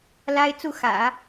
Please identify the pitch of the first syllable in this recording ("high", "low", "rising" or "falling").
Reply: high